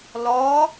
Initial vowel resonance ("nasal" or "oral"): oral